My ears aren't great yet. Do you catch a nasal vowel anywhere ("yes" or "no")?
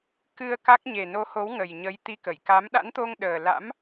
no